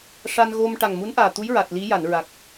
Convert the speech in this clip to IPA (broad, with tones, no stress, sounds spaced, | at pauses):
ʂ a˧ n ɣ o˧ m ʈ a˨˩ ŋ m u˧˥ n ʔ aː˨˩ t̪ u˧˥ j ɹ a˨˩ t̚ l i˧˥ j a˨˩˨ n ɹ a˨˩ k̚